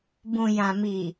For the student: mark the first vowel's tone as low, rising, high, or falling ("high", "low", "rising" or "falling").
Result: low